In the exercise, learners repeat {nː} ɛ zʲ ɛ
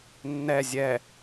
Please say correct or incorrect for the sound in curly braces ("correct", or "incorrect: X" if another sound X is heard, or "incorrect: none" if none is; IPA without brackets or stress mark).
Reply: correct